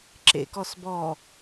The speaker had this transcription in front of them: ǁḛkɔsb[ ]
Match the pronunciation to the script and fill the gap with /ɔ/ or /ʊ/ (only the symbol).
ɔ